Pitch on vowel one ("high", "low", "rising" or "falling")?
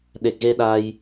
low